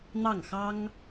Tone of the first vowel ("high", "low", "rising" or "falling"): falling